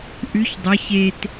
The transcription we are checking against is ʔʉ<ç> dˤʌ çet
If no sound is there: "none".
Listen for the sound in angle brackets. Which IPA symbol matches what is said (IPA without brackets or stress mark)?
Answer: ç